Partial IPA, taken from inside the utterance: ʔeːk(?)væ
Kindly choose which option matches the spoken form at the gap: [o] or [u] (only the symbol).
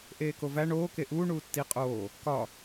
o